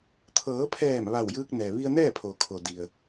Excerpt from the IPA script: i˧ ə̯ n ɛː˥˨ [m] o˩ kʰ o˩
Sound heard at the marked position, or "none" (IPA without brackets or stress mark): pʰ